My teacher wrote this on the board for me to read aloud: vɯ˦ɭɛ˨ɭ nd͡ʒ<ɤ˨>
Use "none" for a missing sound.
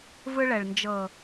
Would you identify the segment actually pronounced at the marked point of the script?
ɤ˨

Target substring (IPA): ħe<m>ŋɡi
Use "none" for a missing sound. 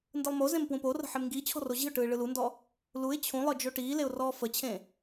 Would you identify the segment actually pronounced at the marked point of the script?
m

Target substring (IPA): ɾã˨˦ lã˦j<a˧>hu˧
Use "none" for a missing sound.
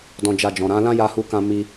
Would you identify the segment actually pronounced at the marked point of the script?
a˧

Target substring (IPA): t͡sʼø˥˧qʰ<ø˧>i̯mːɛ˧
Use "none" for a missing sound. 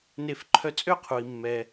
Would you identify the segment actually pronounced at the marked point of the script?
u˧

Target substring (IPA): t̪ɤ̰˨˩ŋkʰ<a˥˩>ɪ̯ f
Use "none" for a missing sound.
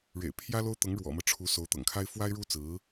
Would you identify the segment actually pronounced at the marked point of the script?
a˥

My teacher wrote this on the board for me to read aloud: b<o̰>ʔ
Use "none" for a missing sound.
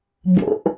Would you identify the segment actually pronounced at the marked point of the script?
o̰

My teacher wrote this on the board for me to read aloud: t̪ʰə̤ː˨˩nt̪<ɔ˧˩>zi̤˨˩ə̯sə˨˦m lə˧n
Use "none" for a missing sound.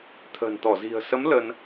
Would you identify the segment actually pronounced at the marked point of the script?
ɔ˧˩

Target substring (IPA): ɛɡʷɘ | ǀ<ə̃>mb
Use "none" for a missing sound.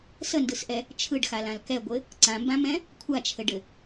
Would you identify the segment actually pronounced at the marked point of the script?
ã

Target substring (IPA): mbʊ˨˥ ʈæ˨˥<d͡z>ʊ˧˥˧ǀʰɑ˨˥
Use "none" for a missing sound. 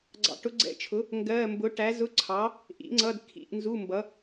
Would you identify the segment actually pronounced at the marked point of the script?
z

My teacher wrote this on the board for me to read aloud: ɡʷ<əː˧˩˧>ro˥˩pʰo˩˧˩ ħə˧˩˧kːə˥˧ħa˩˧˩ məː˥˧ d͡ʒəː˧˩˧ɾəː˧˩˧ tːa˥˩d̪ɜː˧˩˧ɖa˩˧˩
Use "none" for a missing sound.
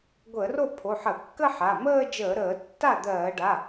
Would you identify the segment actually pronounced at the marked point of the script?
əː˧˩˧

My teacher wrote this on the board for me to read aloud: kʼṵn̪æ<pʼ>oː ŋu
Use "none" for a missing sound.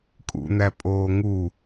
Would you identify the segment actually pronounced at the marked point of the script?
pʼ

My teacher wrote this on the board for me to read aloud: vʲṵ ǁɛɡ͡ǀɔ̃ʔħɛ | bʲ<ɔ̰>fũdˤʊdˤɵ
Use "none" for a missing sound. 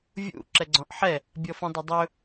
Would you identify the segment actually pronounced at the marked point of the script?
ɔ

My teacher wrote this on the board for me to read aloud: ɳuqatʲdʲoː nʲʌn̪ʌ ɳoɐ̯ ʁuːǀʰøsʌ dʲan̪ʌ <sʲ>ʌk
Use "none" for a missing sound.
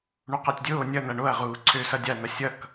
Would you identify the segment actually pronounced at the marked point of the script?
sʲ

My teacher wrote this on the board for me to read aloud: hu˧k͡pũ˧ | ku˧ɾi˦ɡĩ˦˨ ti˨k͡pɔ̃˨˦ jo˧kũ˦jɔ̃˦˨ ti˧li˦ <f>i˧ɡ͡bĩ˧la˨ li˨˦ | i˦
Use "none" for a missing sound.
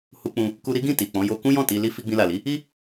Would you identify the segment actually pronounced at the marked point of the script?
f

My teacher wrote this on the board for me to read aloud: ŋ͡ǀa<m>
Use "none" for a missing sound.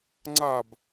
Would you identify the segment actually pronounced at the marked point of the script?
b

